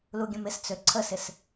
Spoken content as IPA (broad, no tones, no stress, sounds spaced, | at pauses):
l u ɡʲ ə̃ m ɪ s t͡s ø ǀʰ ə s ɪ s